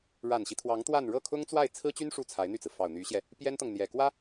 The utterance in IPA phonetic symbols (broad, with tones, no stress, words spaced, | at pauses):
ɻa˨˩nɕi˦t̪ʰwɑ˧˥ŋ t̪wa˥˧n ɻɤ˥˩kʰʊ˥ŋt͡swa˥˩ɪ̯ t͡sʰɹ̩˥t͡ɕy˥n ʂu˥˩t͡sʰa˧˥ɪ̯n̪y˥˩t͡sɹ̩˩ fɑ˨˩ʊ̯n̪y˧˥ɕjɛ˧ | pjɛ˥nt̪ɤ˨ŋ n̪jɛ˨˩kwä˥